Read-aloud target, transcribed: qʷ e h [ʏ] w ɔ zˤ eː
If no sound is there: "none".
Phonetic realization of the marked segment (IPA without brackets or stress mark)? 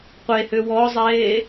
ʏ